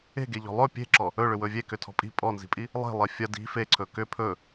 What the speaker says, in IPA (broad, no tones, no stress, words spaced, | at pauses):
e̤ɡeʎɔ̤ lˠɵ pʲe̤ǁɔ | ɵ ɭʏwɵvʲe kʏtʰɔ̤pʼi̤ pʼɔnzi̤pʼi | lˠe̤ lˠefʲɐ di̤ feǀʰɵ kʏ pʰɵ